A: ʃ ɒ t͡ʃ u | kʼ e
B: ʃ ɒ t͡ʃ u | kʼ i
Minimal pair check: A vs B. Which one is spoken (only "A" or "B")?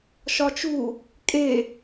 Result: A